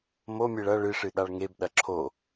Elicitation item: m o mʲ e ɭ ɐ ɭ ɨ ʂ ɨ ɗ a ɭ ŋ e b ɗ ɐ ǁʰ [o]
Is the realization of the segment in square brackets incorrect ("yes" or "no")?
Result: no